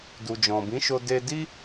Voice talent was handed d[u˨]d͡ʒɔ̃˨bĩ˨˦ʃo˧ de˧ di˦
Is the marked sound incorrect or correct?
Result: correct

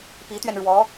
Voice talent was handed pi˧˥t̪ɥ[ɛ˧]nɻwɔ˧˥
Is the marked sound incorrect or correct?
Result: correct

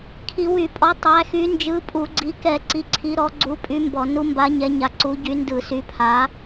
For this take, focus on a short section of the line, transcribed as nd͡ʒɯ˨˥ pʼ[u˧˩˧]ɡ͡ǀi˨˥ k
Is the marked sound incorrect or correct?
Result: correct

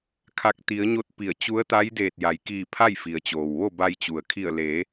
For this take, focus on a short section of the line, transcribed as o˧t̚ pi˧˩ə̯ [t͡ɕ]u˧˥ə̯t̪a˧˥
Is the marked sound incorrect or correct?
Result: correct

